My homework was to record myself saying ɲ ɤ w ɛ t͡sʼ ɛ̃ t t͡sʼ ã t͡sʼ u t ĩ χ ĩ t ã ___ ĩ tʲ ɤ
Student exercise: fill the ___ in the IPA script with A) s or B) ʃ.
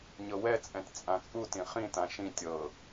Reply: B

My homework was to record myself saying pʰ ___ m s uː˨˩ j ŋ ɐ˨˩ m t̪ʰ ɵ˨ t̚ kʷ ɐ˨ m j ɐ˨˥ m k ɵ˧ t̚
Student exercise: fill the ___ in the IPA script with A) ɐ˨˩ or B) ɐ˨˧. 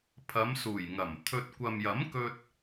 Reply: B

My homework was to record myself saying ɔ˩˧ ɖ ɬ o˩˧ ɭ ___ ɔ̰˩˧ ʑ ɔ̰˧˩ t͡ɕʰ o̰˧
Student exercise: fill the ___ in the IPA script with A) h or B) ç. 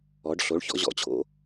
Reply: B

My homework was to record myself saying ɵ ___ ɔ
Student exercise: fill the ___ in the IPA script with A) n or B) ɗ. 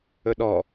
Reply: B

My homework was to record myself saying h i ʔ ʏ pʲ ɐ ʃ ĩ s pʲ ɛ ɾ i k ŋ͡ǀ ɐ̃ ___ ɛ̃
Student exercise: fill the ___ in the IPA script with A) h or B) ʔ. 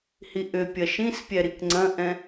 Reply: B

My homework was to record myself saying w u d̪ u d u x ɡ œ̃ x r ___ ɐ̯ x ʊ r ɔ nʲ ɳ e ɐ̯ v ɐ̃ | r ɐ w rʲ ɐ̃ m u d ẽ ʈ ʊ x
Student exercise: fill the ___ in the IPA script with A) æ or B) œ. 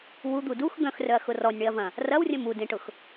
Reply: B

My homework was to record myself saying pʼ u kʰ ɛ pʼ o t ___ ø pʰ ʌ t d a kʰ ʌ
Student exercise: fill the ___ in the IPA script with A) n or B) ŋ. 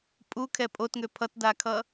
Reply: B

